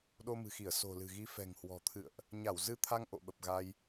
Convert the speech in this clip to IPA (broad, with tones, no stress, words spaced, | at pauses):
ɗo˧mɨ̤˨˩xi˧˩ə̯ so̤˨˩lɨ̤˨˩ɣi˨˦ fɛ̤˨˩ŋhwɔ̤˨˩t̪ʰɨ̰˧˨ə̯ʔ | ɲa˧˩w zɨ˧t̪ʰa˧ŋ ʔo̰˧˨ɓə˨˩p̚ ɣa˧j